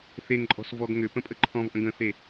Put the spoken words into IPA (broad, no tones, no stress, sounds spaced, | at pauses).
θ e ŋ ǃʼ ɔ̤ s v ɔ ɡ ŋ ʏ p ə̃ pʼ ə ǃʰ ɔ̃ v ʔ ə̃ ɡ ə̃ θ e